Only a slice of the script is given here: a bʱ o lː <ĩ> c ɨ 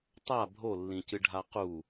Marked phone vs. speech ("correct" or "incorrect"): correct